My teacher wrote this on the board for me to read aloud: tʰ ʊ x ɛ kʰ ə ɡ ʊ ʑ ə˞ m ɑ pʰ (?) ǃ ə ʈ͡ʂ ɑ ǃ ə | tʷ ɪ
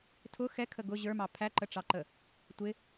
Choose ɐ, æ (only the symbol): æ